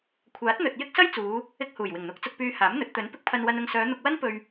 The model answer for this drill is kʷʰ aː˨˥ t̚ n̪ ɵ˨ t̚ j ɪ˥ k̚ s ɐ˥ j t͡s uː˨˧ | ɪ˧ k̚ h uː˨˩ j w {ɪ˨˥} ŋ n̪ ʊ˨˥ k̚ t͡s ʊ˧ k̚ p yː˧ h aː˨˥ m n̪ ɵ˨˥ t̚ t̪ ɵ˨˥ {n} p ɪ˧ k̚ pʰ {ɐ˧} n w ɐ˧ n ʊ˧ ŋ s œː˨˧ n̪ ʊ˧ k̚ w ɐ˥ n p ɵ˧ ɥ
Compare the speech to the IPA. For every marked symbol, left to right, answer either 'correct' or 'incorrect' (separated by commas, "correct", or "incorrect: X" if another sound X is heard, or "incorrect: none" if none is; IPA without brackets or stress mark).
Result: incorrect: ɪ˨˩, correct, correct